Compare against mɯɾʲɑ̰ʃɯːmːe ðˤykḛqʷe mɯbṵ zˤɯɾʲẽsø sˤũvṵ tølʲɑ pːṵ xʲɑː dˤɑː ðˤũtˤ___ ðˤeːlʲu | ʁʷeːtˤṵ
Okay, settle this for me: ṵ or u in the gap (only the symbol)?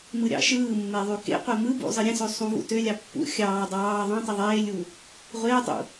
u